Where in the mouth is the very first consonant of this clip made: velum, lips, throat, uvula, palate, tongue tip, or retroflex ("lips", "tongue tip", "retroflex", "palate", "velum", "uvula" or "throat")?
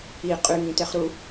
uvula